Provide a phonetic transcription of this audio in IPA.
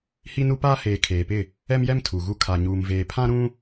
h i˦ n u˦ p aː˦ h eː˨ kʰ eː˨ p ɪ˦˨ | ɛ˦ m j ɛ˦ m tʰ u˨ ɣ u˦ kʰ a˨ ɲ uː˨ m v eː˨ pʰ ã˦ ɾ ũ˦

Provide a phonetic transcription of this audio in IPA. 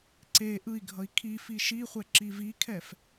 ǀ e ʔ ɯ i̯ ɡʱ ʌ i̯ kʰ i f i ʃ i χʷ ɛ ǁ i v i kʰ ɛ f

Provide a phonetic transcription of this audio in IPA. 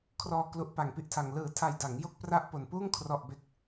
kʰ r ɔː˧ k l u˦˥ ʔ p a˧ ŋ p i˥˩ ʔ tʰ a˧ ŋ l ɯː˨˩ tʰ a˨˩ j d a˩˦ ŋ j o˥˩ k̚ p r a˥˩ ʔ p o˨˩ n p uː˥˩ ŋ kʰ r ɔ˨˩ ʔ b e˨˩ k̚

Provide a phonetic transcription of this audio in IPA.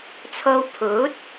t͡sʰ o˧ w pʰ uː˨˥ t̚

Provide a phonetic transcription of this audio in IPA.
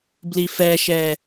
b l i f ɛ ʃ ɛ

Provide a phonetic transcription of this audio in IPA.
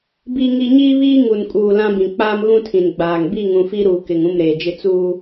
b i˦ ŋ i˦ ɲ iː˦ β iː˦ ŋ u˨ n kʼ uː˨ l ã˦ b ĩ˨ k͡p aː˦ m ɣ ũ˦ tʰ ĩ˨ n ɡ͡b aː˨ ŋ b i˦˨ ŋ ũ˨ f i˦ ɾ uː˨ k ɪ˨ ŋ ũ˦˨ m ɾ eː˨ d͡ʒ ɪ˦ t͡s uː˦

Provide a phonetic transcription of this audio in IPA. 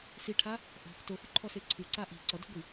s i ʈʰ a | ʔ ɔ̤ x t o x u ǃʰ ɔ s e ǀʰ u ǀ a ʔ i̤ ǀ ɔ d o̤ ɡʷ i

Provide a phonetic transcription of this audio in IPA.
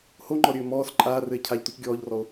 h o ŋ͡ǃ ɔ ɾʲ ɘː m ɔː s ǃʼ aː r ɘ e̯ cʰ a ʎ t u c ɡʲ ɔː ʎ r ɔ o̯

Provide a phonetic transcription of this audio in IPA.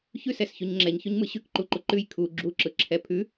ç ʉ s ɛ s ç ʉ ɲ ŋ͡ǁ ɛ ɲ ç ʉ ɲ m ɯ ɕ ʉ k ǃ u ǃ u ǃ ʉ j kʰ u ɡ͡ǁ u ǁ ɯ ǁʰ ɛ pʰ ʉ

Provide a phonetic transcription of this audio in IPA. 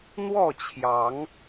n̪ w ɔ˥˨ t͡ɕʰ j ɑ˨˦ ŋ

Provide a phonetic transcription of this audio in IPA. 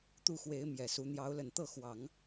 t̪ u˥˩ x w e˧˥ ɪ̯ m j ɛ˨˩ s u˧˥ n̪ j ɑ˧˥ ʊ̯ l ə˨˩ n t̪ ɤ˥˩ x w ɑ˨˩˦ ŋ

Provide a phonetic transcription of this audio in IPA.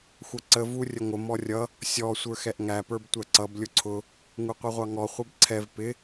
xʷ ʌ ǀ ə v u rʲ ə ŋʷ ə m ɔ rʲ ʌ | sʲ ɔ sʷ ə˞ x ɛ ʔ ŋ æ p ə˞ b tʷ æ ǀ ʌ b lʲ ʊ ǀʰ ʊ | ŋ u qʷ i ʁʷ ɑ ŋ ɔ χʷ ɛ b ǀʰ ɛ v p ɪ

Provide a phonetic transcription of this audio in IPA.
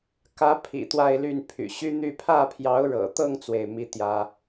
k ä˧˥ pʰ ḭ˨˩ t̪ w a˥˧ ɪ̯ l y˥˩ n pʰ y̰˨˩ ɕ y˥ n̪ y˥˧ pʰ ä˥˩ pʰ j ɑ˧˥ ʊ̯ ɻ ɤ̰˨˩ t̪ ɤ˥˧ ŋ t͡s w e˥˩ ɪ̯ m i˥ t̪ j ä˥

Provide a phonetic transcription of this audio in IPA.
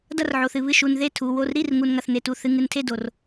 d ɐ˥˨ r ʕ o˨ θ ɨ˨ β ɨ˥˨ ʃ u˨ n ð e˥˨ tʰ u˨ w o˥˨ r ɾ i˥˨ r ŋ u˨ n ŋ ɐ˨ θ n e˨ t u˨ θ ɨ˨ ŋ ɨ˨ n tʰ e˥˨ d o˨ r

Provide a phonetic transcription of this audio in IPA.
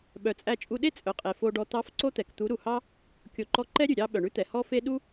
ɓ œ˨ t͡sʼ æ˧ t͡ʃʼ u˧ ɗ e˦ t͡sʼ œ˨ qʼ e˨ f o˧ ɖ ɔ˧ t̪ ɑ˦ f ǀ o˦ t̪ ɛ˨ k t̪ u˨˦ ɾ u˨ h ɑ˦ | kʲ o˨ ǃ ɔ˧ ǃ ɛ˦ ɾʲ ʉ˨ ɾʲ ɑ˦ ɓ œ˨ ɳ ʉ˦ t̪ ɛ˨ h ɔ˦ f e˦ ɗ u˦

